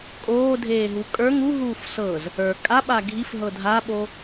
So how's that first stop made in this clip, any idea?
ejective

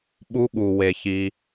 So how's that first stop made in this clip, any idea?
implosive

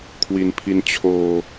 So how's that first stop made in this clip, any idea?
aspirated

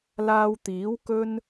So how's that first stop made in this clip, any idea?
plain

